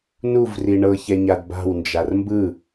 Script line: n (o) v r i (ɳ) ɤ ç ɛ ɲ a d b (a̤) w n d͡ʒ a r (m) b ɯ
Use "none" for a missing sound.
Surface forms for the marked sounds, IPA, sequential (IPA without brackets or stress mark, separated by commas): u, ɳ, a̤, m